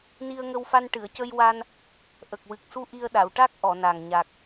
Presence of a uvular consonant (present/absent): absent